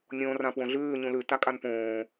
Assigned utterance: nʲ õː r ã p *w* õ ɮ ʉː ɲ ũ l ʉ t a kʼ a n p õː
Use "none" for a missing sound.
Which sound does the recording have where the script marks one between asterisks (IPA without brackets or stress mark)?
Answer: w